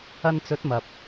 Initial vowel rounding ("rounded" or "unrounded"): unrounded